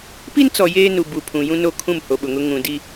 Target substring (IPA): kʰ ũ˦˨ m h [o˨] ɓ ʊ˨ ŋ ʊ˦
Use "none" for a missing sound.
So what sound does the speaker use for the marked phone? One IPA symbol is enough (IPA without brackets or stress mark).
o˨